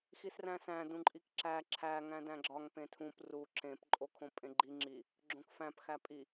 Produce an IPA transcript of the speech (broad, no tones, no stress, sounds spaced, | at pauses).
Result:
x i s r æ̃ s æ̃ d ũ ǃʼ i k ǁ æ ǁʰ æ ŋ æ̃ d æ̃ ɡ͡ǁ ɒ ŋ p ẽ tʰ ũ p r u ǁ ẽ p ǃʼ o kʰ õ pʼ ẽ ɡ͡ǃ i ŋ͡ǁ i | ɡ͡ǁ õ k f æ̃ p x æ pʼ i